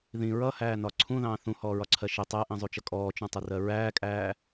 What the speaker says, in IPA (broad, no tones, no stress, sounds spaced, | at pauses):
ð ĩ ɹ ʌ h æː n ɒ ǀʰ ũ ð ɑ̃ː θ ũ h ɔː ɹ ɒ ǀʰ ɜ ʃ ɪ tˤ æ ʔ ĩ zˤ u t͡ʃ ʌ kʼ ɔː t͡ʃ ũ tˤ ɪ r ɜ ɹ æː kʼ æː